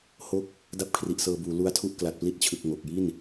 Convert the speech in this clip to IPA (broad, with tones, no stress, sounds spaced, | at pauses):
h o˥˩ k̚ | d a˥˩ p̚ kʰ r i˨˩ ʔ s ɤː˧ b uː˩˦ l u˦˥ a̯ tʰ u˥˩ ʔ k l a˨˩ t̚ p l i˦˥ t̚ t͡ɕʰ ɯ˨˩ k̚ ŋ o˨˩ k̚ j i˥˩ n